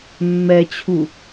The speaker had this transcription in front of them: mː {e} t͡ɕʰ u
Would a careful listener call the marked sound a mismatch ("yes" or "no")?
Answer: yes